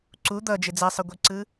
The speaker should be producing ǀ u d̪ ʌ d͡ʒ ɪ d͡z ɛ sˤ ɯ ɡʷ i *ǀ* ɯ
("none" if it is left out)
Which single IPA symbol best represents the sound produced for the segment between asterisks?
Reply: ǀ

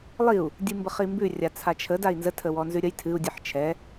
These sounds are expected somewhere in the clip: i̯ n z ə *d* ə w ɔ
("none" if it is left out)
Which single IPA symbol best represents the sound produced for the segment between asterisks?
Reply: tʰ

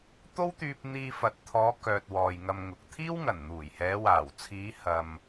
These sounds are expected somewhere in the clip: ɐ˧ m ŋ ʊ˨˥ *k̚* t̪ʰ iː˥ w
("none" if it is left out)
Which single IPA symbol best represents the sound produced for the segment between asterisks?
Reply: k̚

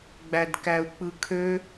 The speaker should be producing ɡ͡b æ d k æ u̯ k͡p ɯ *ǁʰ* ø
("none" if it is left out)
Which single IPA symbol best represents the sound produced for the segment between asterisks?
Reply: kʰ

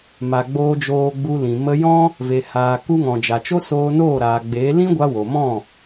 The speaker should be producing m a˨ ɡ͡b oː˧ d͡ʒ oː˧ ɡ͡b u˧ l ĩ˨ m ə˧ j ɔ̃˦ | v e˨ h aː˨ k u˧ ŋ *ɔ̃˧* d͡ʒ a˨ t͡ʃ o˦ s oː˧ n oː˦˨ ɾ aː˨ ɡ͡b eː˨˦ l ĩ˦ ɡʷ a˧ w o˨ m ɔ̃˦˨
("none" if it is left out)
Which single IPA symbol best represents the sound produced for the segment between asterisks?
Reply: ɔ̃˨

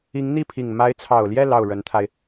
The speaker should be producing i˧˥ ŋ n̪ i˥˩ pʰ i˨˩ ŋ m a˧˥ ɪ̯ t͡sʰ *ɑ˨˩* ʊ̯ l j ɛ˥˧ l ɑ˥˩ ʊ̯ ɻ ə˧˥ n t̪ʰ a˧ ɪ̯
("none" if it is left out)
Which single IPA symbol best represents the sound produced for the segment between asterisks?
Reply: ɑ˨˩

